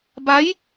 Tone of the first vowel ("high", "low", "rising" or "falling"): rising